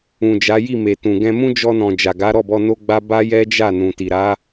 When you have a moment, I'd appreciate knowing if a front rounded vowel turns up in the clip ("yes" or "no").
no